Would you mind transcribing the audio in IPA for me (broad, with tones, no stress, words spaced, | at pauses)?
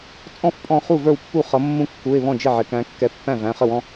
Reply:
t͡sʼɔ̃˥˩fpʼɔ̃˧˩ χu˥˩və˞˥˩wpːu˥˩χʌ˨˦ mːũ˦kːu˩˧˩ɪ̯βɔ̃˥˩d͡ʒɪ˥˩ ʕɪ˩˧˩kæ̃˨˦ kːɛ˨˦pːæ̃˥˩ væ̃˩˧˩χə˥˩wɔ̃˦